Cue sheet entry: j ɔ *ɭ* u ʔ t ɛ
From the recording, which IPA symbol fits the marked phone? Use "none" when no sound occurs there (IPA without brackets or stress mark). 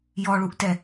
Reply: ɭ